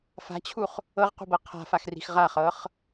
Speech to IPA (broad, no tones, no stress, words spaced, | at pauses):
fa̤t͡ɕʰuχ | ɤʁqṳbɤ qʰa̤faxri̤x ʁaχɤχ